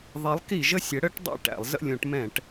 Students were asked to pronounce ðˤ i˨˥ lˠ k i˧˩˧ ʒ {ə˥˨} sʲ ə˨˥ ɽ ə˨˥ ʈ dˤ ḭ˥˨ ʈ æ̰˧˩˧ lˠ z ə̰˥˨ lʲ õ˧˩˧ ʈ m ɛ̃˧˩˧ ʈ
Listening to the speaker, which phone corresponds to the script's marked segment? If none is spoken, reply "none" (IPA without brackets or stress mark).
ə˥˨